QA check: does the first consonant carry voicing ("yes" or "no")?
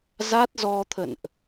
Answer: yes